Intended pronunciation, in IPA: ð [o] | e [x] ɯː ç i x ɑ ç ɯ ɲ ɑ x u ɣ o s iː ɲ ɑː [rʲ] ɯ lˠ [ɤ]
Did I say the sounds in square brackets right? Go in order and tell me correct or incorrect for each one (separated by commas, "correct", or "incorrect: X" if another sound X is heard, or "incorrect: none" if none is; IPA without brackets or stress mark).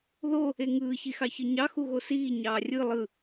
correct, incorrect: ŋ, correct, incorrect: ɯ